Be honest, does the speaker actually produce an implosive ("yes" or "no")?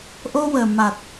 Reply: no